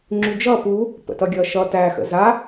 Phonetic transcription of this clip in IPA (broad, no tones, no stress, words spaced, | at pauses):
ŋ͡ǁyd͡ʒʌ pu | pə̰tʌɡʲʌʃʌ tæ xə̰za